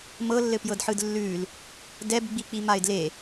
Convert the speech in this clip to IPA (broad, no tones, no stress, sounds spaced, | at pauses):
m ɤ lː ɘ p j ɤ d ħ ɯ d lː ʉ l | d ɛ b ɡ͡b i k͡p i m a ɪ̯ d l e